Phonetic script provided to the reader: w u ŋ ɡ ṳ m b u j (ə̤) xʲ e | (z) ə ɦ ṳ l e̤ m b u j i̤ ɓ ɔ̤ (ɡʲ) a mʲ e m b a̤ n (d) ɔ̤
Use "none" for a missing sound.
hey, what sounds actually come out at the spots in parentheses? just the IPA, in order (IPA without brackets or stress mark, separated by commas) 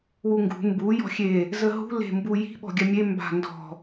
ɔ̤, z, ɡʲ, d